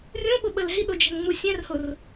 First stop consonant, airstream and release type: implosive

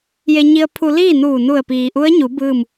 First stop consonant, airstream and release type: aspirated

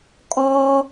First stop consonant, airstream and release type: ejective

